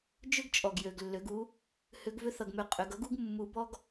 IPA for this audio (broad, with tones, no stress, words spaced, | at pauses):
d͡ʒʏ˥ɡt͡ʃʼɔ˩ɡ jø˩ɡlːø˩˧ɡu˧˥ | hʏ˧˥ɡvʏ˥θʌ˧ɡmø˧ qʼʏ˩˧ɡ ʌ˥ɡu˥ɡ mːu˧˥ bɔ˥ɡ